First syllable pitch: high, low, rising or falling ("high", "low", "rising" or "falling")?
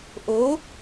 rising